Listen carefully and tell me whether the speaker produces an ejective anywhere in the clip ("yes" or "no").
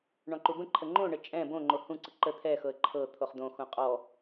yes